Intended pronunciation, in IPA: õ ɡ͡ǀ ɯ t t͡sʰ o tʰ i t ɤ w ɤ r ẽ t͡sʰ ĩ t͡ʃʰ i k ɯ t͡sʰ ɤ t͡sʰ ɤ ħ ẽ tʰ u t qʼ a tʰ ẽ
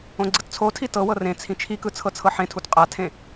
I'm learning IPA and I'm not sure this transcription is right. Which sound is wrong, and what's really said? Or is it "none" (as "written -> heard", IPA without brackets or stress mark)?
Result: none